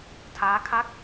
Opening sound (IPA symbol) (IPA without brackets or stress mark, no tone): tʰ